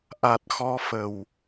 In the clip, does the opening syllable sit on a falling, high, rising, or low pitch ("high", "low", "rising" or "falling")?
low